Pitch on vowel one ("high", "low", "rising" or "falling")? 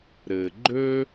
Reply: low